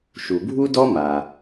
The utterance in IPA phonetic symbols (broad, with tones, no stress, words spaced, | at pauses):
ʃu˩bʱu˥dɔ˥ ma˩